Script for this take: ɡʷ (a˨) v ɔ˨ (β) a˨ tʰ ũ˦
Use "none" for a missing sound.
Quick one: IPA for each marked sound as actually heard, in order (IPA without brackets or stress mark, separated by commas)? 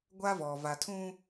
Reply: a˦, v